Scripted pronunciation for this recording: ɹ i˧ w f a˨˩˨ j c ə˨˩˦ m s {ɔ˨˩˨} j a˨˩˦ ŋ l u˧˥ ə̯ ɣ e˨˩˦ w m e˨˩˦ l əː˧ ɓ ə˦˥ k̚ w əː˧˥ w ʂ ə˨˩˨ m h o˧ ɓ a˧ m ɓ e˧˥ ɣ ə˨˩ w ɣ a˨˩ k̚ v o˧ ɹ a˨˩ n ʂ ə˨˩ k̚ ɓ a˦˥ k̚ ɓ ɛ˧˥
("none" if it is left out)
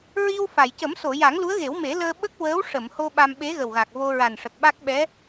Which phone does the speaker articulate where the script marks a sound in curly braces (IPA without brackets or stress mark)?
o˨˩˨